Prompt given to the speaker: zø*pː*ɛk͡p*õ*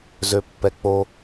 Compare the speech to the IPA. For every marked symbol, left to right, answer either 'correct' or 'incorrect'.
correct, incorrect: o

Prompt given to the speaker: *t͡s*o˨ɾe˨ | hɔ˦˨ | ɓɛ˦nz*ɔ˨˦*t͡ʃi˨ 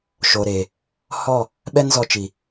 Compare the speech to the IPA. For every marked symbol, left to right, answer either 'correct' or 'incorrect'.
incorrect: ʃ, incorrect: ɔ˧

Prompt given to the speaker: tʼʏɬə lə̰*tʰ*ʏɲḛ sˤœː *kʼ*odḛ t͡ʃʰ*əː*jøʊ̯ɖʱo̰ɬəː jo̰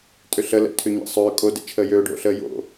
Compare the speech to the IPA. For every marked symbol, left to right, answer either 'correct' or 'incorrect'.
correct, correct, correct

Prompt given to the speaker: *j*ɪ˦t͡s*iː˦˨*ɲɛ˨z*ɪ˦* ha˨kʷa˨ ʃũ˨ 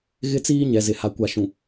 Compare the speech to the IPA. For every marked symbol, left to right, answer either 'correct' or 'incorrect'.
incorrect: ɣ, incorrect: iː˦, incorrect: ɪ˨

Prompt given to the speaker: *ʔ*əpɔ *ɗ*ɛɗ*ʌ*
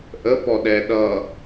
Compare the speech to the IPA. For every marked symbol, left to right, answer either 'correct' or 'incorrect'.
correct, correct, correct

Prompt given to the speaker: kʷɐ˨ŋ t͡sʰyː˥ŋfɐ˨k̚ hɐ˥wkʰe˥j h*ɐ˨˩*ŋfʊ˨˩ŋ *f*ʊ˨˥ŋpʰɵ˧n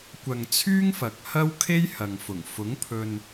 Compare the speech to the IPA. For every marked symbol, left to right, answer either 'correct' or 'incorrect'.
incorrect: ɐ˨, correct

